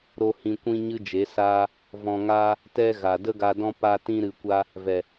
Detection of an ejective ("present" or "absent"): absent